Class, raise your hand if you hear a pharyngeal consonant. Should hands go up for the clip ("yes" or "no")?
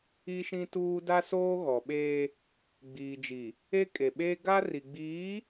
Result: no